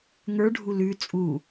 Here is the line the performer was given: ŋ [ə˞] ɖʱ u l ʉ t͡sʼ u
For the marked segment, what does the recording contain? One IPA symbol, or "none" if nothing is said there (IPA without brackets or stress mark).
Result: ə˞